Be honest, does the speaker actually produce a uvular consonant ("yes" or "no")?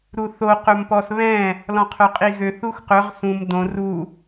yes